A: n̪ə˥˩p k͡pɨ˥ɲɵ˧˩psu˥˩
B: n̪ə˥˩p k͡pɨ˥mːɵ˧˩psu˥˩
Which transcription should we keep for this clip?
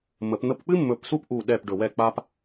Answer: B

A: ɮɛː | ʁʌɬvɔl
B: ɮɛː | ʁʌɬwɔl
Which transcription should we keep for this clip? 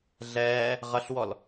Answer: B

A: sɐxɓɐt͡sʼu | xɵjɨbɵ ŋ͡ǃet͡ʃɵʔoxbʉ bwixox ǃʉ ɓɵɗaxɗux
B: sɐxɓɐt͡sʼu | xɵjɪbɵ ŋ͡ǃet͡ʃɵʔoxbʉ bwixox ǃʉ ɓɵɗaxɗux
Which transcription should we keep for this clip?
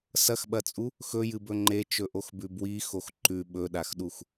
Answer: A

